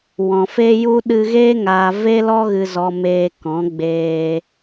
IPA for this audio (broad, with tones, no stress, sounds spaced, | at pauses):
w ɔ̃˨ f e˧ j u˧ ɗ ɨ˧ ɣ eː˦ ŋ aː˨ v e˦ l ɔ˦ ɣ ɨ˨ z ɔ˨ m eː˧ k ɔ̃˨˦ ɡ͡b eː˧